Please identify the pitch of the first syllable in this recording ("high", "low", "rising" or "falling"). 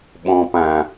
low